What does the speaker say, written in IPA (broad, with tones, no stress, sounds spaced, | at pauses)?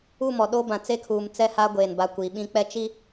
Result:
u˦˨ m ɔ˨ ɗ o˦ b ã˨ t͡s e˦ kʰ uː˨ m t͡s ɛ˦ h a˦ ɡʷ eː˨ n b a˦˨ kʷ i˨ ɓ ĩ˦ k͡p ɛ˦ t͡ʃ i˦